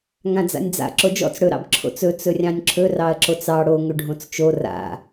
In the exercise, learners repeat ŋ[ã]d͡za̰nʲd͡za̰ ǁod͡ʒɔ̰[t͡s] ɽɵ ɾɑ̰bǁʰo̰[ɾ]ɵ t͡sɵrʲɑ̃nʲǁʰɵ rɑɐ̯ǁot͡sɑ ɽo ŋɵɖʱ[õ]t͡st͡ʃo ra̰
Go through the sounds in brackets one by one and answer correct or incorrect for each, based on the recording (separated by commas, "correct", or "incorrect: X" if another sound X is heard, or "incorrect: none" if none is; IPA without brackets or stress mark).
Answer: correct, correct, incorrect: t͡s, correct